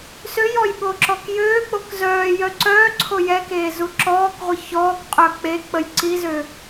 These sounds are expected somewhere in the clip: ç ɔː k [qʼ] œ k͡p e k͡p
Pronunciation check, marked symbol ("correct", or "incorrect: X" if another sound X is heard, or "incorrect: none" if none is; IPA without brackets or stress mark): correct